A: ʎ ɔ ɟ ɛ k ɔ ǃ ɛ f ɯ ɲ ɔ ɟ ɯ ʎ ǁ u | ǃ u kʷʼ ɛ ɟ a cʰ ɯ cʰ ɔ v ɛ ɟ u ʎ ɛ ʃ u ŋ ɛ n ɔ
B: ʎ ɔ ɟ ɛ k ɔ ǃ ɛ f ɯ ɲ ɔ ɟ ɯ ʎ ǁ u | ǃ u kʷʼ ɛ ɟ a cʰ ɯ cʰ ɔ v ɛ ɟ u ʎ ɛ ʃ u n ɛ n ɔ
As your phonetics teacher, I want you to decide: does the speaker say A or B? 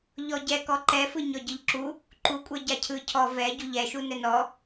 B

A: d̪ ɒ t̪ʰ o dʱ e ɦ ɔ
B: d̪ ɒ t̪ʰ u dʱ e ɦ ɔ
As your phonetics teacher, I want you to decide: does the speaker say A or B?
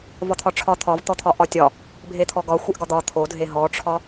A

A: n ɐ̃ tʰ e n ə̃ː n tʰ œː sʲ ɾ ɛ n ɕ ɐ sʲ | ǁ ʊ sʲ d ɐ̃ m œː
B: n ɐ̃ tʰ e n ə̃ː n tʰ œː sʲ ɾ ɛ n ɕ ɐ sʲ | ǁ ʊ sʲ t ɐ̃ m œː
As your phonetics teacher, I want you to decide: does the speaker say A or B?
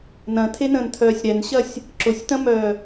B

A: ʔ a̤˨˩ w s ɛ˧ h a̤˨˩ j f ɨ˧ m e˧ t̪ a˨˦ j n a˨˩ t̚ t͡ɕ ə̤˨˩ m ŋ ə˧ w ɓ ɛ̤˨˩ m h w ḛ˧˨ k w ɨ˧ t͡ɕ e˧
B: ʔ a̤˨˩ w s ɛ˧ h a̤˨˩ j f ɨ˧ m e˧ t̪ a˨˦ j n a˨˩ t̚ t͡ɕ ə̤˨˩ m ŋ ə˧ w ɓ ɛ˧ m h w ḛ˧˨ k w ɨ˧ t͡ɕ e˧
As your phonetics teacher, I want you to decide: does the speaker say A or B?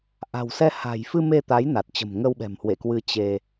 A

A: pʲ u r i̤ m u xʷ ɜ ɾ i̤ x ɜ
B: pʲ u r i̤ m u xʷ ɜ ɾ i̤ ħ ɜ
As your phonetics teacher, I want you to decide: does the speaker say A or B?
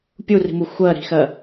A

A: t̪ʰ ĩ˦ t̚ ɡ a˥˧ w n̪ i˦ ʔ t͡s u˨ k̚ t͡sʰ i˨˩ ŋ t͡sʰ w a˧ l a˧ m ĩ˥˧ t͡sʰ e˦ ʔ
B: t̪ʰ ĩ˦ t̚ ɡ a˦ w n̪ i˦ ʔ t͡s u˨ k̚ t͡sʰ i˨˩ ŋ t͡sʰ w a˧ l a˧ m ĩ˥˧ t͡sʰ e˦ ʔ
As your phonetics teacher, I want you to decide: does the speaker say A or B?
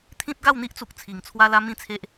A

